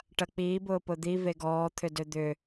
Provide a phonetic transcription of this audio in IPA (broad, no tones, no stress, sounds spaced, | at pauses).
ʈ ɐ k͡p iː b ʊː p ʊ d̪ i v e ɡ ɔː t̪ʰ ʏ d ø d̪ ʏ